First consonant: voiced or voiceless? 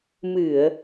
voiced